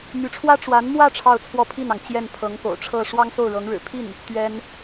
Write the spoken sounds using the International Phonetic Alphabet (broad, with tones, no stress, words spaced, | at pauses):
my˧˥ʈ͡ʂʰwä˥ ʈ͡ʂwa˧˥nmwä˥˧ ʈ͡ʂʰɑ˥˧ʊ̯t͡sʰwɔ˥˧pʰi˥˩nɑ˩ŋ t͡ɕjɛ˥˩npʰɤ˧˥ŋko̰˨˩ʊ̯ʈ͡ʂʰɤ˥˩ ʂwɑ˥ŋso˥˩ʊ̯ɻɤ˧˥ŋɻɻ̩˨˩ pʰi˥˩n | t̪ɥɛ˥n